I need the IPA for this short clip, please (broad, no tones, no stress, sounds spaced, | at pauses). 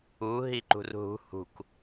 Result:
u ɦ i ǃ ṳ r ɦ ṳ h ṳ k